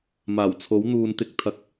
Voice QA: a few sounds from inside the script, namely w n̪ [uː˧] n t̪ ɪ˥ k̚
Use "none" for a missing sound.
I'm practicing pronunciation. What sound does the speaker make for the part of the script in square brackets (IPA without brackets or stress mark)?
uː˧